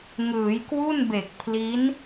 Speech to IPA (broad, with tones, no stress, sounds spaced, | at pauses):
ŋ ɯː˩˦ j k w u˥˩ n b e˨˩ k̚ pʰ l i˦˥ n